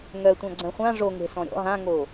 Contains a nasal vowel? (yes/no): yes